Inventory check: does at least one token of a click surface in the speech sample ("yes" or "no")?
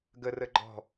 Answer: yes